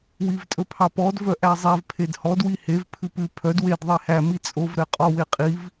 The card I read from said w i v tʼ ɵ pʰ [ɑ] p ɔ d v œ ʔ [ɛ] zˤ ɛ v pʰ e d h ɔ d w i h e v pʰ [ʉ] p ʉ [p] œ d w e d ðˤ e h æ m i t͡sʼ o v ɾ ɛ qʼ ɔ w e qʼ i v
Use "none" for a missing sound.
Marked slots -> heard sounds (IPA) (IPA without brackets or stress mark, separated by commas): ɑ, æ, ʉ, pʰ